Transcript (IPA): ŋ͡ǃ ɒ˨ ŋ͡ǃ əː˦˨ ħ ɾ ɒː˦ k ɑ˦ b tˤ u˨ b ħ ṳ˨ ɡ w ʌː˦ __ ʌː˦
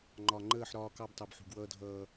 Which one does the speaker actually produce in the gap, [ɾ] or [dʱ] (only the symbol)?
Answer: dʱ